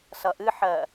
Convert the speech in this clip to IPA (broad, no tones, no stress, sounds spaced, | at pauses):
s ʌ ʔ ɨ ħ ɜ